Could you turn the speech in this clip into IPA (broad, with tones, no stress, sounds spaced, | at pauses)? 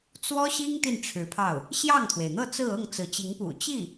t͡s w ɔ˥ ɕ i˥ ŋ t̪ i˥˩ n ʈ͡ʂʰ ɻ̩˧˥ pʰ ɑ˥˩ ʊ̯ | ɕ j ɑ˥˩ ŋ t̪ʰ w e˩ ɪ̯ n̪ ɤ˥˧ t͡s ɹ̩˥˧ ɤ˥˩ ŋ t͡s ɹ̩˧˥ t͡ɕ i˧˥ ŋ p ṵ˨˩ t͡ɕ i˥˩